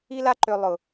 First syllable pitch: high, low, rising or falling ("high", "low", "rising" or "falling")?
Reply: high